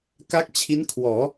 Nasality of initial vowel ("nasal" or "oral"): oral